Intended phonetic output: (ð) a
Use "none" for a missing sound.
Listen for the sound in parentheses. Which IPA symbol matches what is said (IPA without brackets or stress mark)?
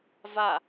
v